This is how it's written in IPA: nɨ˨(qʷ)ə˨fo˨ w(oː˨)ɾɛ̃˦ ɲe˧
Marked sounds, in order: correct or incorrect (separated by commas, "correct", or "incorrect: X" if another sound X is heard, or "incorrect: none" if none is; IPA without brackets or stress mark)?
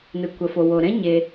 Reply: incorrect: kʷ, incorrect: o˨